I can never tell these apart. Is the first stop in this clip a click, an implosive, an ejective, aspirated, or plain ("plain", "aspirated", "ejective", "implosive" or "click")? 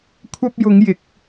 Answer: aspirated